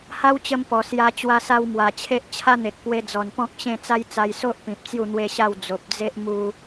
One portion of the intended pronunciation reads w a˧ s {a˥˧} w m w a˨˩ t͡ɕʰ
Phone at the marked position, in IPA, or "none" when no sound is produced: a˧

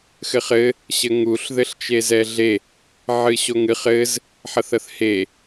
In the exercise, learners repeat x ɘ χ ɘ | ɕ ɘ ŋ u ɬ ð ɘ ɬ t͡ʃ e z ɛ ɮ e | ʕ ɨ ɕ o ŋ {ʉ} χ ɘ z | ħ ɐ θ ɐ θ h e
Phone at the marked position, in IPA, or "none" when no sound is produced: ɨ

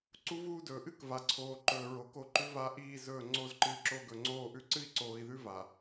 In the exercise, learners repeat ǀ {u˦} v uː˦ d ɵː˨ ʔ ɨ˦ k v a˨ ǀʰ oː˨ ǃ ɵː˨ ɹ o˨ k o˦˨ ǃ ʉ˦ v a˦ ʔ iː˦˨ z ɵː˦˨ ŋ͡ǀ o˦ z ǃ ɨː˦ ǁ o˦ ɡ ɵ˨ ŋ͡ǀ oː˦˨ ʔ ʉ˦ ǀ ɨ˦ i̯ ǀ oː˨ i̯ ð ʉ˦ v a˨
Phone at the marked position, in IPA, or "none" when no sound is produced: u˦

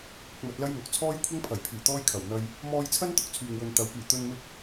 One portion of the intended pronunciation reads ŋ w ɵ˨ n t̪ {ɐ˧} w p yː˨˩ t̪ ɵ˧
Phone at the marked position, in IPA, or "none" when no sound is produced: ɐ˨˥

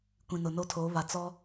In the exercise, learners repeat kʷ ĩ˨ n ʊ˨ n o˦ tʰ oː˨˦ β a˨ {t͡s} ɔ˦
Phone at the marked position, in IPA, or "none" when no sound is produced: t͡s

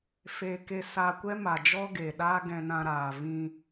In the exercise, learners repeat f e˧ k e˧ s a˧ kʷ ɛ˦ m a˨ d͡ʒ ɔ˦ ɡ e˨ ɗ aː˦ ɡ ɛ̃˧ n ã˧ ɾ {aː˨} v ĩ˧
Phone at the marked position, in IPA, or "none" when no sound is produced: aː˨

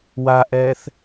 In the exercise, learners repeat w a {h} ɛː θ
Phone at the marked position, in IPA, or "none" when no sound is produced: ʔ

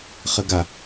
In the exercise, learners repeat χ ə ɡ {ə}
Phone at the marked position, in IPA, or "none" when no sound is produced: a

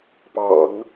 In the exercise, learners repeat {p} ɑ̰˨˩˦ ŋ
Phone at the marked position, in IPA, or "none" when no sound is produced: p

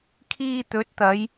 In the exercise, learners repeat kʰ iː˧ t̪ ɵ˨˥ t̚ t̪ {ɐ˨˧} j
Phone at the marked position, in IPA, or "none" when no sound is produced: ɐ˨˧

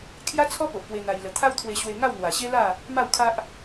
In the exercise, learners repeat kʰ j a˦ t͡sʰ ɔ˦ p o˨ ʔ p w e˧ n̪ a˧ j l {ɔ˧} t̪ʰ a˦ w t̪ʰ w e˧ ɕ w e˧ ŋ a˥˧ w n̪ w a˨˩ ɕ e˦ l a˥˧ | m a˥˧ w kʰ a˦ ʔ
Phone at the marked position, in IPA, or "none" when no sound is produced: ə˧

